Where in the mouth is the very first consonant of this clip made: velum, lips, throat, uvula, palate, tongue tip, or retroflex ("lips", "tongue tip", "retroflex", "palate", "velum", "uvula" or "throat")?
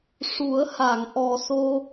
retroflex